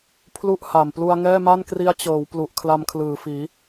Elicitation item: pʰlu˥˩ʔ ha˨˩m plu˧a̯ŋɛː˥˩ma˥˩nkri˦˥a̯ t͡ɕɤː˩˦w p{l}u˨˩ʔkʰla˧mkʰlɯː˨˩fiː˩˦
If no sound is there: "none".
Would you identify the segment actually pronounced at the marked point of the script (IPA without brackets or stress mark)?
l